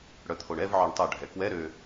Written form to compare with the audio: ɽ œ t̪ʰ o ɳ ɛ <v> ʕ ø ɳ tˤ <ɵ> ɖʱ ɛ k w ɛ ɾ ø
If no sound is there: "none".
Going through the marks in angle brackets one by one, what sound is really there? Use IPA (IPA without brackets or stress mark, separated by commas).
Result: v, œ